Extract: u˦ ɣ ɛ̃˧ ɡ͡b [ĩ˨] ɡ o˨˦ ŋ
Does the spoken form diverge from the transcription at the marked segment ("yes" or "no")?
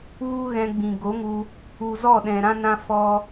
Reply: no